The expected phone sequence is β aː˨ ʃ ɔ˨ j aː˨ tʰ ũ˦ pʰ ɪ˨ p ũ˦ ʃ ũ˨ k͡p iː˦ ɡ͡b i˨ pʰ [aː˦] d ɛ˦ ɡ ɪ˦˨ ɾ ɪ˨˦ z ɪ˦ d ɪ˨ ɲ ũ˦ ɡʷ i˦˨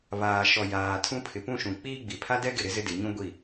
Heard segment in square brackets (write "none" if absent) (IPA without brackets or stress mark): a˦